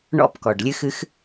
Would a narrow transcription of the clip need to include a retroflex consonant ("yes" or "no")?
yes